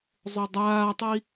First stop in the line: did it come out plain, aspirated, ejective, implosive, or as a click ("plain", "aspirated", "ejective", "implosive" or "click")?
plain